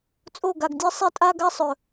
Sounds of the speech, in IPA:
t͡sʼ o˦˨ ɡ a˨ ɡ dʲ ɜ˦ sˤ ɛ˦ tʼ a˦ ɡ a˦ sˤ ɵ˨

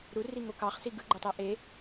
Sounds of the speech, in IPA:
ɾ u r i ŋ o k ɑ χ s i ɡ ɯ ɡ͡ǃ o tˤ e ʔ e

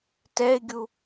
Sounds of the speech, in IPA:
t ɛ ɪ̯ ɡʲ u

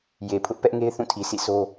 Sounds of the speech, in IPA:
j e˨ pʰ ʊ˦ ʔ p ɛ˦ ʔ ŋ e˦ ɪ̯ θ ũ˦˨ tʰ i˨ sʰ ḭ˦˨ sʰ o˦

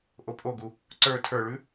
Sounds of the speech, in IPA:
ʔ o pʼ o ɡ u | ǀ ə˞ tʰ ə˞ ɭ ʉ

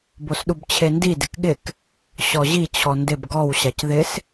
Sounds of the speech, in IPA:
b o s ɗ u b t͡ɕʰ e n d i d ɪ k ɠ ɪ k | ɕ ɔ ʑ i t͡ɕʰ ɔ n d ɪ b ɡ ɔ w ɕ a c ð ɪ s

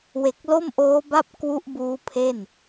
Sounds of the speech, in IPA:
w e˨˩ k̚ l o˥˩ m ʔ oː˦˥ b a˥˩ p̚ k w u˦˥ ʔ b uː˦˥ pʰ e˥˩ n

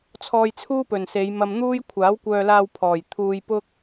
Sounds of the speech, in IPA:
t͡sʰ ɔː˧ j t͡sʰ uː˥ p ɵ˨˩ n s e˨˧ j m ɐ˧ m n̪ uː˥ j kʷʰ aː˨˥ w kʷ œː˧ l aː˧ w pʰ ɔː˨˩ j t̪ʰ uː˧ j p ʊ˥ k̚

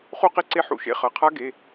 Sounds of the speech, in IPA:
χ u˥˧ q e˥˧ ǀ e˦˥ ħ ṵ˦˥ ʃ ḛ˧˥˧ χ ʌ˩˧˩ qʰ a˦˥ ɡ e˩˧˩

